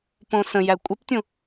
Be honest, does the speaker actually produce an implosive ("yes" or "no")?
no